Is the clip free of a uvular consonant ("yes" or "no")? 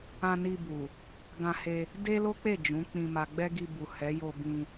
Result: yes